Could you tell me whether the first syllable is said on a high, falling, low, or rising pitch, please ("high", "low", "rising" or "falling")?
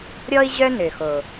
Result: high